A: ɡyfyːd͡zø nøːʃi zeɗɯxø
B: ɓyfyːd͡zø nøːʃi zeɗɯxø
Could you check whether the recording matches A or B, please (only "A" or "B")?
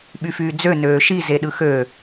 B